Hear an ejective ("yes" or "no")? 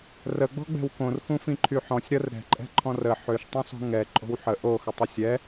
yes